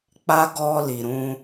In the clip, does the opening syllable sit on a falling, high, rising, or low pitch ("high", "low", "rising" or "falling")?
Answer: high